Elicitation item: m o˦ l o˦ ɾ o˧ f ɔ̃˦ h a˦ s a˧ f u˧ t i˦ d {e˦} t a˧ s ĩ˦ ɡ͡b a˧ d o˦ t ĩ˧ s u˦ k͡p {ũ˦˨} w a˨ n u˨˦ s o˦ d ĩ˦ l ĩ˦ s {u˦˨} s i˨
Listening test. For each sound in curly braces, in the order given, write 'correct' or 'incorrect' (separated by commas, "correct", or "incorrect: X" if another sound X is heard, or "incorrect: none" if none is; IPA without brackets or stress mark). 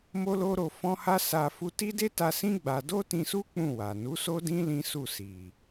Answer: correct, correct, correct